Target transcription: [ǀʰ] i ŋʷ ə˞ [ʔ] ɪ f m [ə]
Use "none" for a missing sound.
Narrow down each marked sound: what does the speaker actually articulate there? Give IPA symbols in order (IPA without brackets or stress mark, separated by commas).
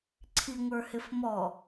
ǀʰ, h, ɔ